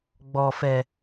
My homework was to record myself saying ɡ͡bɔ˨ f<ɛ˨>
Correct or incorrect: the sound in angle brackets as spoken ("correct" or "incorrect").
correct